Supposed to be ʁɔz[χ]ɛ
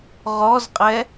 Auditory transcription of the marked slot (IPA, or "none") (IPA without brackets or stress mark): qʼ